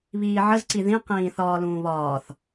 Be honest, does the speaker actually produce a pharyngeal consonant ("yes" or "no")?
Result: yes